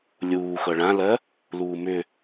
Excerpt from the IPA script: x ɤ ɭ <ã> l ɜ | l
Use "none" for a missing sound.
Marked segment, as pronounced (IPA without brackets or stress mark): ã